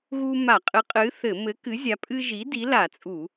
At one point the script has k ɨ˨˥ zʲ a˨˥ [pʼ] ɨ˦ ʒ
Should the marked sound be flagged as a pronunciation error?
no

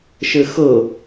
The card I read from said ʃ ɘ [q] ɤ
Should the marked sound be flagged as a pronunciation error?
yes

